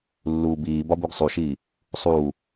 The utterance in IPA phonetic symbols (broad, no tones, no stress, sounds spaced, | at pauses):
lː uː b iː b ɒ b u ɡ sˤ u ʃ iː | sˤ uː